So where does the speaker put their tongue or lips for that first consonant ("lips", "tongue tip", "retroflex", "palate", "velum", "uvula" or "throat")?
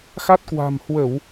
velum